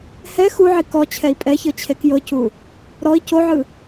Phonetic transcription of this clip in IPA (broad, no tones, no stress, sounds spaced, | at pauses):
h ɛ x u ʕ i k ɔ t͡ɕʰ ɛ i̯ pʼ ɛ ç ɤ t͡ɕʰ e k j ɤ c u | ɾ ɔ i̯ c o ʕ ɯ